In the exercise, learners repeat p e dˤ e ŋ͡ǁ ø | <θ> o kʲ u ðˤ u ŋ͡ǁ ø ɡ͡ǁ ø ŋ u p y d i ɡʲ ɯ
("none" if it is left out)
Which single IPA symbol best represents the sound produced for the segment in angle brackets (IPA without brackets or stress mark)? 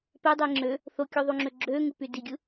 θ